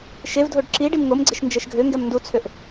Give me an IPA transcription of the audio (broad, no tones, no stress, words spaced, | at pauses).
ʃevdʱoɖ ǁiɖim ŋomɡ͡ǀeʃ nd͡ʒɛʃɡʱøŋɡɛm ndut͡sʰøʔ